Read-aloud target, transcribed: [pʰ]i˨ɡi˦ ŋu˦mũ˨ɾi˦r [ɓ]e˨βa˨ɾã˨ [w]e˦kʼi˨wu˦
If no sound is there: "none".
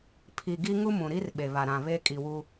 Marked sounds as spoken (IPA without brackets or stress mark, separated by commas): pʰ, ɓ, β